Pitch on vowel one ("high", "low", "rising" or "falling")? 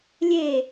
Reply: falling